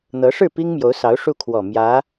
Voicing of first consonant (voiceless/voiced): voiced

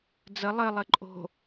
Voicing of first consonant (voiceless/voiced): voiced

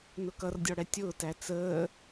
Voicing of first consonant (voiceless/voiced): voiced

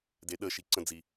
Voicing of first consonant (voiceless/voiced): voiced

